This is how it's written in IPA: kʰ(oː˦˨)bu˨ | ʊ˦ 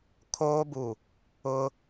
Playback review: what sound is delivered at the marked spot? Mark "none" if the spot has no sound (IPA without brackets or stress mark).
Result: oː˦